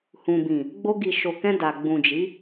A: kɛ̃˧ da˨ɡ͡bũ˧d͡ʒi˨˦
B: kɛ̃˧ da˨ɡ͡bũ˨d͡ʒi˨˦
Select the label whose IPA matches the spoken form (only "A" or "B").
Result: B